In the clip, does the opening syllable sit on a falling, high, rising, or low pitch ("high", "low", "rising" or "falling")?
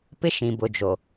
high